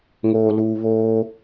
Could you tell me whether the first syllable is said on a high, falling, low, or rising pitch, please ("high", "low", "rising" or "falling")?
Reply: low